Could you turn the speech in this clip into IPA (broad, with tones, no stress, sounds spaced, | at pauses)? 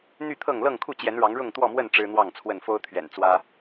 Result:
n̪ y˥˨ t̪ʰ ɤ˥˨ ŋ l ɤ˥˨ ŋ kʰ u˥˨ t͡ɕ j ɛ˨˦ n ɻ ɑ˨˦ ŋ ɻ ʊ˥˨ ŋ t̪ w ɔ˥˨ m w ə˥˨ n ʈ͡ʂ ɻ̩˦ n̪ w ɑ˥˨ ŋ t͡sʰ w ə˥˨ n f o˦ ʊ̯ t̪ʰ ɥ ɛ̰˨˩ n t͡s w ä˦